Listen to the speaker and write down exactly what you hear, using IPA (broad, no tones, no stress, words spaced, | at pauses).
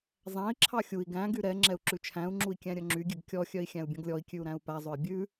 zˤæ̃i̯ǁʰɑ xʲui̯ ɡæ̃ɡy ɾɛ ŋ͡ǁɛu̯ǁʉt͡ʃʰæ̃u̯ŋ͡ǁui̯ kʲæ̃ɾʲœŋ͡ǁyɡʲʉɡ kʲɔxʲœi̯ xʲæ̃u̯bʲɔ̃ɡlʲɔi̯kʲʉu̯ ɾæ̃u̯pæzˤɵi̯ bʲʉ